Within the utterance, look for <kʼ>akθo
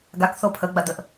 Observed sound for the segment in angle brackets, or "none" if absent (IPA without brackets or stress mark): ɡ